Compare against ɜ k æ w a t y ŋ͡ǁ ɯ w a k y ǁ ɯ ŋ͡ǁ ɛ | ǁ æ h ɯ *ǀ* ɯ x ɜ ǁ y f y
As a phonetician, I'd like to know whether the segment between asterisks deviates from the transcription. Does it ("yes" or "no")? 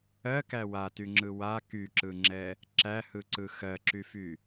no